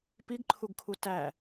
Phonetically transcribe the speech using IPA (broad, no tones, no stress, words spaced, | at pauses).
piɡǃʰuɡkʰu tæ